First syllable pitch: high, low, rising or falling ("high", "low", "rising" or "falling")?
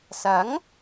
rising